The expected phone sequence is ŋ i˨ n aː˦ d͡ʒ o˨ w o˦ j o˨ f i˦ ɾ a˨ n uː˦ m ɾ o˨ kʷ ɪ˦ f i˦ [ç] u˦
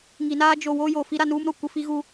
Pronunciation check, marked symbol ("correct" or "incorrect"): incorrect